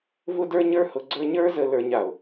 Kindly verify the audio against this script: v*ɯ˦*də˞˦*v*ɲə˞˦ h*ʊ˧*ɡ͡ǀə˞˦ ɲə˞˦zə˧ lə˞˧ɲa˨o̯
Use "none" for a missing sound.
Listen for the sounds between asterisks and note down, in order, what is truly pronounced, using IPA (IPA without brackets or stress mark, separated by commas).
ʊ˦, none, ʊ˧